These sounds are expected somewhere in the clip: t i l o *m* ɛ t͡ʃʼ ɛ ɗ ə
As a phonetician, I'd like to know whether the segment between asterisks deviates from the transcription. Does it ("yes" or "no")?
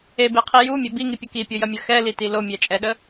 yes